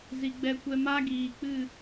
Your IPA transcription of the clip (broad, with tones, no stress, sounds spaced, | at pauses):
z i˨ ɡ͡b ɛ˧ kʷ ɛ˧ m a˦ ɡ iː˨ k͡p ɨ˦˨